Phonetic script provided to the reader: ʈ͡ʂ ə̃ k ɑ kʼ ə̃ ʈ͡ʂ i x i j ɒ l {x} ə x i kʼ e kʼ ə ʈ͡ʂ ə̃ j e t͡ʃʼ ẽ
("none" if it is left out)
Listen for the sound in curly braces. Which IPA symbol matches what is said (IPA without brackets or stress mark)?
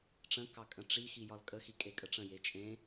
kʼ